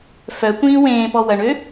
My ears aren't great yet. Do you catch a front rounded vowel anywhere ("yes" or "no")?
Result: yes